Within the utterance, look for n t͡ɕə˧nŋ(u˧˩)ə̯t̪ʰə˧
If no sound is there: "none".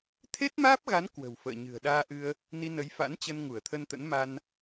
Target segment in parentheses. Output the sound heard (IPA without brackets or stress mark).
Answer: u˧˩